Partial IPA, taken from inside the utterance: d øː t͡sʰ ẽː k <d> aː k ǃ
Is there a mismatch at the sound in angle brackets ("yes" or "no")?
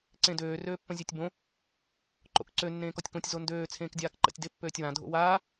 yes